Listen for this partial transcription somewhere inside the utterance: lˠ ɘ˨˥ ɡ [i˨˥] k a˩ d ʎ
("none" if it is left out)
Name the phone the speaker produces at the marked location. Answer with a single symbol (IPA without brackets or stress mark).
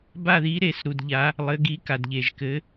i˨˥